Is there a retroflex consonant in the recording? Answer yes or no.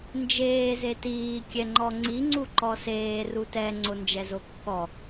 no